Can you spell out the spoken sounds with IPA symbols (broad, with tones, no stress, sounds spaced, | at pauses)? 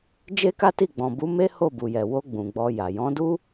d͡ʒ e˦ k a˦ t i˦˨ ɡ͡b ɔ̃˨ b u˨˦ m e˦ h o˦˨ b u˨ j ɛ˨ w o˧ ɡ͡b ũ˨ ɡ͡b ɔ˧ j a˨ j ɔ̃˨˦ d u˦